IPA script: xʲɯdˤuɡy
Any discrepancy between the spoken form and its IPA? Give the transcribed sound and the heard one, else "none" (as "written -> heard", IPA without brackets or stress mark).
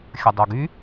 ɯ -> ə